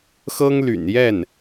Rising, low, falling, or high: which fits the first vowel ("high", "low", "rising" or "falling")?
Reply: high